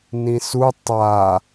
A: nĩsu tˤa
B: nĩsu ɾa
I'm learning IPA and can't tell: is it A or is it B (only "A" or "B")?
A